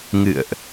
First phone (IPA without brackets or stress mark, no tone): ŋ